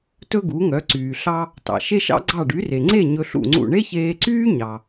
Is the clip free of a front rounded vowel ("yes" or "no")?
no